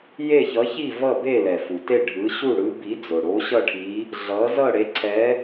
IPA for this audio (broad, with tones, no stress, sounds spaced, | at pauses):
j e˥˧ ç ʌ˧˥ ç i˥˧ v ʌ˥˧ b e˥˧ l ɛ˨ f u˨ t e˥˧ ɖʱ ɯ˧˥ ɕ u˥˧ ɽ ɯ˧˥ b i˧˥ d͡z o˨ ɽ o˧˥ ɕ ʌ˥˧ ʈʰ i˧˥ | ɮ ʌ˧˥ z ʌ˥˧ ɽ e˧˥ ǀʰ ɛ˧˥